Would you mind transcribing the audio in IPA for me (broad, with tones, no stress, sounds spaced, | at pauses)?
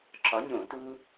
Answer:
ǁ ɒ˨˥ ɲ õ˧˩˧ t u˦